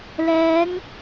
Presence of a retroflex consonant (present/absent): absent